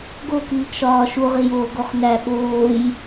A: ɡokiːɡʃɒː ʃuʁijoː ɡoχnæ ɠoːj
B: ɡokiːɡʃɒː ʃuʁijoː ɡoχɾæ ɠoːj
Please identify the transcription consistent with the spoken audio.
A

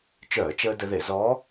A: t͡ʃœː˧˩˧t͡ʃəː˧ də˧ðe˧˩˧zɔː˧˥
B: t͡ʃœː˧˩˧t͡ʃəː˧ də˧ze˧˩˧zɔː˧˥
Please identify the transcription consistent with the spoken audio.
A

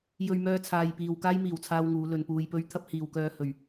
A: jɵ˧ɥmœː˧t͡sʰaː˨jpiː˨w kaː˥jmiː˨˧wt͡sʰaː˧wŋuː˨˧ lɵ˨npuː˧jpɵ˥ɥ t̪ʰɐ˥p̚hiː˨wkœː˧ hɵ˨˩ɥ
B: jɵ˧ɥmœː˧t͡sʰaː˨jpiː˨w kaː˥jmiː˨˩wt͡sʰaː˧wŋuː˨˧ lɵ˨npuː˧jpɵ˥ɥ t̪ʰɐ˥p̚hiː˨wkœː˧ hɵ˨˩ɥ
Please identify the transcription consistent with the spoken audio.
B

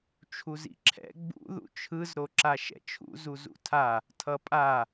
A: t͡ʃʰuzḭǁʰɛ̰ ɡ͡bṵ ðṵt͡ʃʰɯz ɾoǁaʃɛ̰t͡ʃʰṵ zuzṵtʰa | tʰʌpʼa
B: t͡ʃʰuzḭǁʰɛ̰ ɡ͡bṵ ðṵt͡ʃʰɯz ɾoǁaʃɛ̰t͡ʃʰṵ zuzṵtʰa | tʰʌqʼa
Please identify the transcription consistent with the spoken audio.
A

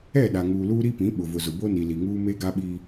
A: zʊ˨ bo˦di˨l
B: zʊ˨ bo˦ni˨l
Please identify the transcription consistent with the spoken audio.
B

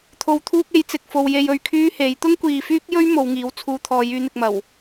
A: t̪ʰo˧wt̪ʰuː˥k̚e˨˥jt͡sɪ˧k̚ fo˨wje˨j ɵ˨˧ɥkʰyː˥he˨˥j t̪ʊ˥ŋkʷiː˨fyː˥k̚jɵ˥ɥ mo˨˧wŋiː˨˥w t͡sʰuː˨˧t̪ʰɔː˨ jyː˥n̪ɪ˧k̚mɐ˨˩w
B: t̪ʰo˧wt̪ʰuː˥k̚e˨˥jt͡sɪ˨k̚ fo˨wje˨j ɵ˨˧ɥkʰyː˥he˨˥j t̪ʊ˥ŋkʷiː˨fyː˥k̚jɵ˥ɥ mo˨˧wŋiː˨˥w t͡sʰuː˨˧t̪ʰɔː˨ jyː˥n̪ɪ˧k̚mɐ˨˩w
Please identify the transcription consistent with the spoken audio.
B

